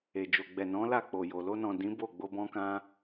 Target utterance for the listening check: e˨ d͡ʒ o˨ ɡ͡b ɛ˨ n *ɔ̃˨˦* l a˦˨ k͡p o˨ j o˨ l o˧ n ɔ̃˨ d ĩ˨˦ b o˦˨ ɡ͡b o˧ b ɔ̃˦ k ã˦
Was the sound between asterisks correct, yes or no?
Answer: yes